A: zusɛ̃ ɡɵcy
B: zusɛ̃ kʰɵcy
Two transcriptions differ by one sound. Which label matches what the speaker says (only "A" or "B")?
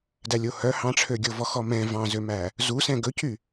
A